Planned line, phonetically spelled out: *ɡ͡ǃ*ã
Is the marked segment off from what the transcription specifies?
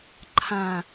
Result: yes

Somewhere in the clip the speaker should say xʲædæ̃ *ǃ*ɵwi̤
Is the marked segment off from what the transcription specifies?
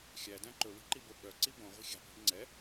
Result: no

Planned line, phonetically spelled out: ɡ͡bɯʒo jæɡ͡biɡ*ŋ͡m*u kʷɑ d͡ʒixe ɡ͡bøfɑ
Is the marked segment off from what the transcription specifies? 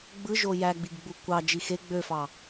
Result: yes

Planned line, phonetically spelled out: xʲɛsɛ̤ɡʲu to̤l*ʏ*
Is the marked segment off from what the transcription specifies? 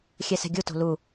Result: yes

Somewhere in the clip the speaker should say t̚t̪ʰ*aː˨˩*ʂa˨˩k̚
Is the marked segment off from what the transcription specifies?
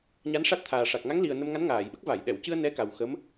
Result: no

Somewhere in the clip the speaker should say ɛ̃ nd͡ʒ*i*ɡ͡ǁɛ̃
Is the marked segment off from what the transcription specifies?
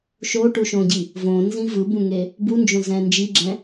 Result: no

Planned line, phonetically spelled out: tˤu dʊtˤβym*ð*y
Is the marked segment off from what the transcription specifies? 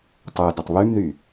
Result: no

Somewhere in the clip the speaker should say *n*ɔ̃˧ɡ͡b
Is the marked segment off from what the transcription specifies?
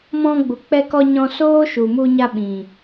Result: yes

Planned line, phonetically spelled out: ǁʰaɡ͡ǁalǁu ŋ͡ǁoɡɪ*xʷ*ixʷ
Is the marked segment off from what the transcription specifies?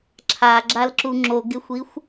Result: no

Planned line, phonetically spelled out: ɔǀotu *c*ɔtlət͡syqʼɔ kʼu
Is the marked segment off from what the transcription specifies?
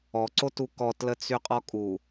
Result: yes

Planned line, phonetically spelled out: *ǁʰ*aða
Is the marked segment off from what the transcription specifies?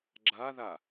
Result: yes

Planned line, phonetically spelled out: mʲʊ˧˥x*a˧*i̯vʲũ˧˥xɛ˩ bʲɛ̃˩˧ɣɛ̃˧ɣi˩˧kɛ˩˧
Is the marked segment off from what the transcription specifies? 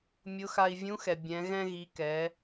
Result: no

